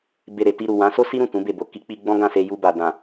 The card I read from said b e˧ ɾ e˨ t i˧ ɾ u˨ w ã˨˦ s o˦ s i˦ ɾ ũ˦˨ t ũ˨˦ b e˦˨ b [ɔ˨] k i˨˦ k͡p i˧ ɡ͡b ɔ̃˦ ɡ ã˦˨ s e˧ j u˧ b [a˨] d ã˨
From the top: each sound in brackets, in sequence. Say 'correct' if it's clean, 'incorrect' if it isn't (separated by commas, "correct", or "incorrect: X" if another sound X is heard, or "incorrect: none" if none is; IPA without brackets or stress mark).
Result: incorrect: o˨, correct